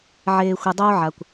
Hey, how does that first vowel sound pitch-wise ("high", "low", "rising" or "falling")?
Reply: low